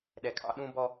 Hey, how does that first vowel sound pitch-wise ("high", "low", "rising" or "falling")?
low